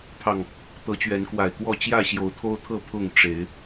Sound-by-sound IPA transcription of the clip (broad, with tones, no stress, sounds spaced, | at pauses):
pʰ ɑ˨˩ ŋ | t̪ ɤ˨˦ t͡ɕ ɥ ɛ˨˦ n k w a˨˩ ɪ̯ k w ɔ˥˨ t͡ɕ j ä˥˨ ɕ j o˨˦ ʊ̯ t̪ʰ o˦ ʊ̯ t̪ʰ ɤ˥˨ pʰ ʊ˥˨ ŋ ʈ͡ʂ e˨˦ ɪ̯